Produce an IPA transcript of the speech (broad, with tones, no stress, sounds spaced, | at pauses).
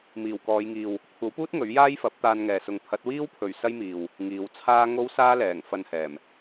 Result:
m iː˨˩ w k ɔː˨˧ j ŋ iː˨ w | kʷʰ ɐ˨˥ w p uː˥ t̚ ŋ ɵ˨˥ ɥ j aː˥ j f ɐ˨˥ p̚ t̪ aː˧ n ŋ ɛː˨ s ʊ˨˧ ŋ pʰ ɐ˨˥ t̚ w iː˥ w pʰ ɵ˨ ɥ s ɐ˥ j m iː˨ w | ŋ iː˨˧ w t͡sʰ aː˥ ŋ o˥ w s aː˥ l ɛː˨˩ ŋ f ɐ˧ n h ɛː˨˩ m